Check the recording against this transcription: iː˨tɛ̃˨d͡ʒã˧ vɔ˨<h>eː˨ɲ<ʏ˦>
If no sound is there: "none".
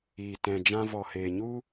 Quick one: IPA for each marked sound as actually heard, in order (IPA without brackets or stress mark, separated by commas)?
h, u˦